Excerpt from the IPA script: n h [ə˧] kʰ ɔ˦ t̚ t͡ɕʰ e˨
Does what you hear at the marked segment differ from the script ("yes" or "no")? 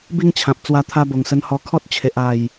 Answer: yes